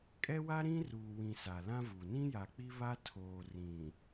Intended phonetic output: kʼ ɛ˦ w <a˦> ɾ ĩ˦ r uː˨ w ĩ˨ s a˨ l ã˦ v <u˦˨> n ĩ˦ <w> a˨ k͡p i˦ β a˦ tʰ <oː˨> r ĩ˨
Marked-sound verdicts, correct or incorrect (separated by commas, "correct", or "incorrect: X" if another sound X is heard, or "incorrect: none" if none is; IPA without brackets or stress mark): correct, incorrect: u˨, incorrect: j, correct